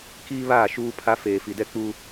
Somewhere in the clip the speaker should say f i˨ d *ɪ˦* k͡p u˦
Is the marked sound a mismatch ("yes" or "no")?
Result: yes